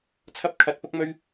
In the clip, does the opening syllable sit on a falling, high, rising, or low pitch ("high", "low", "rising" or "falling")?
high